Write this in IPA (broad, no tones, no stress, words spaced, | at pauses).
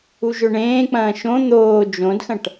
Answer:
uʒɵɳẽːk͡pɐ̃ː ʃõ n̪oː d͡ʒõdxɐ̃ʈ